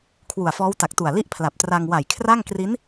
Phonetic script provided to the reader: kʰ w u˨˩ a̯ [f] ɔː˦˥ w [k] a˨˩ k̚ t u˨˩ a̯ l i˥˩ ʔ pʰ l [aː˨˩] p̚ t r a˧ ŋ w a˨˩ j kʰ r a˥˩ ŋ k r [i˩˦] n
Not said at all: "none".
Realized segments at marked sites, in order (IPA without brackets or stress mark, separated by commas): f, t, a˨˩, i˦˥